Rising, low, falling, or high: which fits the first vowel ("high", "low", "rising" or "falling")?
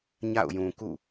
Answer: falling